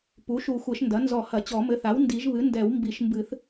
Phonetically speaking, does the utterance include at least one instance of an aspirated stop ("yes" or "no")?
no